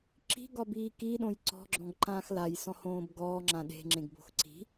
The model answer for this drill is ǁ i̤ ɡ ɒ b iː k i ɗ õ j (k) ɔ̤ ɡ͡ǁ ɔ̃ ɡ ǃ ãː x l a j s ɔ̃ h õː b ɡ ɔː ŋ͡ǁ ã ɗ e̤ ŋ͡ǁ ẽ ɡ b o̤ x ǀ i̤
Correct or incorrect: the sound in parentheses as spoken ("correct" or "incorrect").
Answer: incorrect